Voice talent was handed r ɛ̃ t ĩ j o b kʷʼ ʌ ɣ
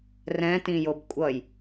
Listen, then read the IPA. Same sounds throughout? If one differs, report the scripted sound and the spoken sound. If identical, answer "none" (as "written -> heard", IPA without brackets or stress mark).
ɣ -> j